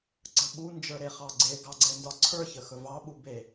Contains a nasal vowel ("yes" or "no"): no